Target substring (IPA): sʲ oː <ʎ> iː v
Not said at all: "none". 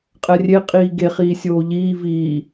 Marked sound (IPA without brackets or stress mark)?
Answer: ʎ